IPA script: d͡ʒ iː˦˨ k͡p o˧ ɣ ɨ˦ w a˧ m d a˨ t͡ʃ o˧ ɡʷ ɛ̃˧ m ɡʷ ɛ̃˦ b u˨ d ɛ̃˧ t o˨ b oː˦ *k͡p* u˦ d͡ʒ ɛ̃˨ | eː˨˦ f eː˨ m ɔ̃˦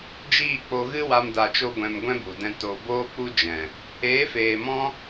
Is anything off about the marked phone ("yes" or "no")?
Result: no